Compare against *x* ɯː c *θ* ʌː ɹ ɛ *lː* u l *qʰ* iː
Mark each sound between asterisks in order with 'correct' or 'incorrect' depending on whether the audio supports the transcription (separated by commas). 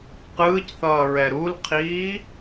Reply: incorrect, correct, incorrect, correct